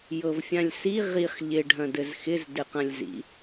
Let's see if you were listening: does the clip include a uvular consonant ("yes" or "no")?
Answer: yes